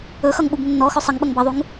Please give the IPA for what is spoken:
ɵ x ʌ ŋ ɓ u b nː ɔ x ɵ sˤ ʌ ŋ ɓ ʌ ŋ b ʌ ðˤ u ŋ

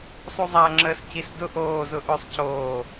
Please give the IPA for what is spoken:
sˤ u zˤ a ŋ͡ǁ əː s cʰ i s d ʊ ʔ oː z ʊ ʔ ʏː sˤ cʰ oː

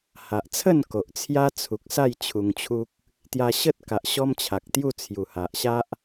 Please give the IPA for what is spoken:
h a˨ ʔ t͡sʰ ə˥˧ n k o˨ ʔ t͡sʰ j a˦ t͡sʰ u˨ k̚ s a˥˧ j t͡ɕʰ u˧ ŋ t͡ɕʰ u˦ k̚ | t̪ j a˧ ɕ ə˦ t̚ k a˨ ʔ ɕ ɔ˦ m t͡ɕʰ a˨ k̚ t̪ j u˥˧ t͡sʰ j u˨˩ h a˨ ʔ ɕ a˦ ʔ

